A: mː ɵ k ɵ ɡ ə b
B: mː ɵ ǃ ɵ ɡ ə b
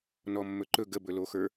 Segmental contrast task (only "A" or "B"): B